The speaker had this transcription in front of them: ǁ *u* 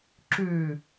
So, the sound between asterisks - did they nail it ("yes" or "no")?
no